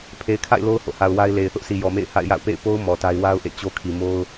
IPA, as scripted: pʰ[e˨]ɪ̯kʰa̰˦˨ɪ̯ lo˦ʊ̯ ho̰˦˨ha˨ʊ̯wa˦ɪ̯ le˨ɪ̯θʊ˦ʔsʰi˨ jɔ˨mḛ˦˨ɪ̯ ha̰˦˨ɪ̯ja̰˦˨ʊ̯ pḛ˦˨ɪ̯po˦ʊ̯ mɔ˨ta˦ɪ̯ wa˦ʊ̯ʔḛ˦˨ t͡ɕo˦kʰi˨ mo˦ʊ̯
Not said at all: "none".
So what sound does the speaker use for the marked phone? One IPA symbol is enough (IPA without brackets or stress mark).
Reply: e˨